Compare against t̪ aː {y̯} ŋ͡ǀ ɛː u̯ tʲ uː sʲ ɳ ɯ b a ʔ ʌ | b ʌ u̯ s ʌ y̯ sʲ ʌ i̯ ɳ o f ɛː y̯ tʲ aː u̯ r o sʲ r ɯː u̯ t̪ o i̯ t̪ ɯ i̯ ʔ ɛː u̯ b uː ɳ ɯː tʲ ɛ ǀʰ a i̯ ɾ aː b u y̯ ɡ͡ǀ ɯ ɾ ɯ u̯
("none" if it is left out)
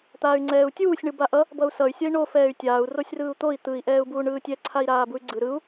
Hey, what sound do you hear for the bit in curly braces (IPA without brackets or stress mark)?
y̯